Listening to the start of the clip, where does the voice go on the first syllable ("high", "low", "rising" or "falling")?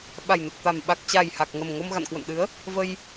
low